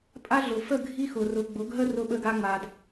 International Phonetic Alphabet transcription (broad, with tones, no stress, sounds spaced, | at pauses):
pʼ a˦ ɮ ʊ˨ f ə˦˨ ɡʱ i˦ x ʊ˨ r ʊ˨ ɡ͡b ʊ˨˦ ɡ ɦ ə˦ r ʊ˧ ɓ ə˧ ɡ a˧ ŋ͡m a˨ d